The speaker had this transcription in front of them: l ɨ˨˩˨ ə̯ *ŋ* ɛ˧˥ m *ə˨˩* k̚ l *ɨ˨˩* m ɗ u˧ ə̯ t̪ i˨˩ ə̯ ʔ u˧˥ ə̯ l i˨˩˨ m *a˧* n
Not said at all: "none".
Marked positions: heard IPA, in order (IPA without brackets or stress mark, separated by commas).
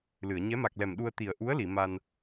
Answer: ɲ, a˨˩, ɛ˨˩, a˧